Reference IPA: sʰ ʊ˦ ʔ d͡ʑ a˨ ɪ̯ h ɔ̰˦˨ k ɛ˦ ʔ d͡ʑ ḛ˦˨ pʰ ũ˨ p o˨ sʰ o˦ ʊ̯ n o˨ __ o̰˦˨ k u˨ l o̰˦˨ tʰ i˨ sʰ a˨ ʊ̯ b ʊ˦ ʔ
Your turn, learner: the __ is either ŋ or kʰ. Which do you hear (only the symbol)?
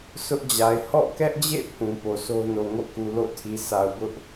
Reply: ŋ